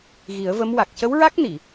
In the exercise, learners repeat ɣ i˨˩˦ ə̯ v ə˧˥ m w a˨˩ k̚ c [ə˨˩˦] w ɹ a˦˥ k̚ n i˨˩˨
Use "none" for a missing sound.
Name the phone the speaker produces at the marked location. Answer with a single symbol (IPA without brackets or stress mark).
ə˧˥